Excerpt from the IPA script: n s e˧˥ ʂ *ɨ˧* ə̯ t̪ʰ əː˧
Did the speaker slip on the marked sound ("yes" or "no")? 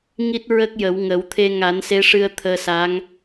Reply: no